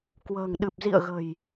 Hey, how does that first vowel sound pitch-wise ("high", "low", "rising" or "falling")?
low